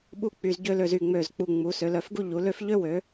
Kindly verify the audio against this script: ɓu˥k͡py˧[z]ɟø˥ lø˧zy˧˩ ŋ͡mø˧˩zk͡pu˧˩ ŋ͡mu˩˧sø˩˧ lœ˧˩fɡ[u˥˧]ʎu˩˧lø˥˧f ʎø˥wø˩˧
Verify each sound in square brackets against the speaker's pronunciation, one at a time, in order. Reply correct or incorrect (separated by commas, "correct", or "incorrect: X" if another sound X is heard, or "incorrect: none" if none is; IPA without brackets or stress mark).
correct, correct